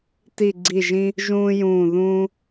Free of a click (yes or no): no